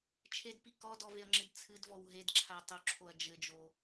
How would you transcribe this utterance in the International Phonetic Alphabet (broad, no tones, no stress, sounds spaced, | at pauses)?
t͡ʃʰ e d p i k ɔ d ɔ v e ɐ̯ ŋ͡ǁ ɨ d t͡sʰ ɨ d v ɔ w ɦ e d ǁʰ a tˤ o ǁʰ o ɐ̯ d͡ʒ ɘ d͡ʒ o